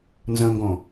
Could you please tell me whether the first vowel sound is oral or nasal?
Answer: nasal